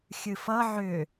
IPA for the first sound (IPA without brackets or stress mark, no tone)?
xʲ